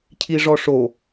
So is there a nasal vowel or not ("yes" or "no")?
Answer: no